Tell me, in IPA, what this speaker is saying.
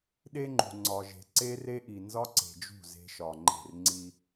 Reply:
ɗ e˦ ŋ͡ǃ ṳ˨ ŋ͡ǀ ɒ˨ ʒ e̤˨ ǀ e˦ r e˦ ʔ i˨ n z ɒ˦ ǀ e̤˨ d͡ʒ ṳ˦˨ z e̤˦ ʃ ɒ˨ ŋ͡ǃ e̤˦˨ r ŋ͡ǀ i˦

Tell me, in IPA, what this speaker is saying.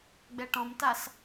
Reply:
ɡ͡b ɛ ʈ ɔ̃ m t a s

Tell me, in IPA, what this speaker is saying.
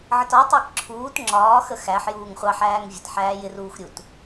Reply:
ʕ ə t ɒ tˤ əː k ǁʰ uː t ŋ͡ǁ ɒː x ə x æ ħ j uː ŋ χʷ ɑ ħ æː ŋ vʲ ə t ħ æː j ɪ r uː x ɾʲ u t

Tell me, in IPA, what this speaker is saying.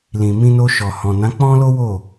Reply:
l ĩ˨ m ĩ˧ n o˧ ʃ ɔ˨ h ɔ̃˨ n ã˨˦ k͡p ɔ̃˦ l o˦ w o˦˨

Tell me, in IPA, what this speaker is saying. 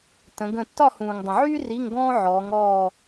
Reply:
t ə̃˩˧ ɡ ə̃˦˨ tː ɒ˦˨ h ũː˩ ŋ dˤ ə̃˩ ʕ yː˥ r i˧˥˧ ŋ ɡ ɔ̃ː˥ ʕ ɔː˩˧ ŋ ɔː˦˨

